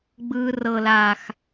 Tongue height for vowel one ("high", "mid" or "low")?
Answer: high